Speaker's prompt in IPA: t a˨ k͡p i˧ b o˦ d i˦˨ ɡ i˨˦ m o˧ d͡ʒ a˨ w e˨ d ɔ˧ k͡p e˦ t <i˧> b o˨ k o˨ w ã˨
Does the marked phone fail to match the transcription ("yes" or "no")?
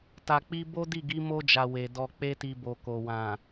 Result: no